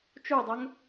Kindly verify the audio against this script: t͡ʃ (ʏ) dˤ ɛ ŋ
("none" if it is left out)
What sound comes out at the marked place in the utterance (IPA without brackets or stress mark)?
u